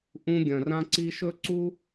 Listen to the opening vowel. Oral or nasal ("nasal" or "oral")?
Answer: nasal